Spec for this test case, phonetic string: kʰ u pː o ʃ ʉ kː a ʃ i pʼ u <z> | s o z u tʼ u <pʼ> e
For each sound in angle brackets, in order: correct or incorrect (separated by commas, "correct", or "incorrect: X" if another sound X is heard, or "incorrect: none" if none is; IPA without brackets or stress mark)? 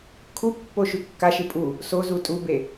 incorrect: none, incorrect: b